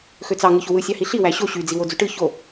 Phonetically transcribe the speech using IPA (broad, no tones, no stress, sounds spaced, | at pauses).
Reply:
x ø t͡s ɑ ŋ ɯ ç o w ɯ sʲ ɑ h i ɬ i w æ ɕ o ɕ y d͡z i w o d͡z y ʈ ɯ ç o